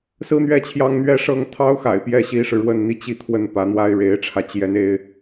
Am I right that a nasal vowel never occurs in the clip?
yes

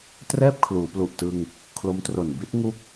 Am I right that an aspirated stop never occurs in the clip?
no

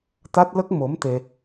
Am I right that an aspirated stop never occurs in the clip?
yes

